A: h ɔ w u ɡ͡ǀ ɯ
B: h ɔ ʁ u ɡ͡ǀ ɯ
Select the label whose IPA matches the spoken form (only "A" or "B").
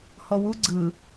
A